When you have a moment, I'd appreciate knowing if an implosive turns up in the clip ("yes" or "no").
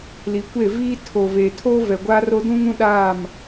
yes